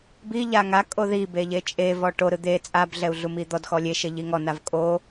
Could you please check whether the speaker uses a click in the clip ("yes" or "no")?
no